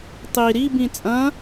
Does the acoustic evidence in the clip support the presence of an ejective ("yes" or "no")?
yes